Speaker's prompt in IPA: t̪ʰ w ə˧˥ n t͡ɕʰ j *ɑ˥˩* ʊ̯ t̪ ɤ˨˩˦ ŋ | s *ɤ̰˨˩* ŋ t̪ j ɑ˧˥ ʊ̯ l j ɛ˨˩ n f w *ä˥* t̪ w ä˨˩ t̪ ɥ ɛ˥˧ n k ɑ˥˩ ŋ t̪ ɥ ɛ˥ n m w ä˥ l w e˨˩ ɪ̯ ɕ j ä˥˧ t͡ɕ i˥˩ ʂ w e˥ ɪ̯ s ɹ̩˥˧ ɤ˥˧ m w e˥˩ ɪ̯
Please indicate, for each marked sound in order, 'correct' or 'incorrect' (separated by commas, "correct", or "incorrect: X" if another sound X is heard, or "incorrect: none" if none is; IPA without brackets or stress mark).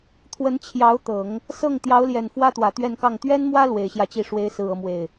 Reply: incorrect: ɑ˧˥, incorrect: ɤ˥˩, correct